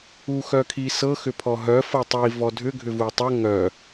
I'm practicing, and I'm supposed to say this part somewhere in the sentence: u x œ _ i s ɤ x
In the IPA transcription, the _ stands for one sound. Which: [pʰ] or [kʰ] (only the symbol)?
kʰ